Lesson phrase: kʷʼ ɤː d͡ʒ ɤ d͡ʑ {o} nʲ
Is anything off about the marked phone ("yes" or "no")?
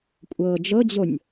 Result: no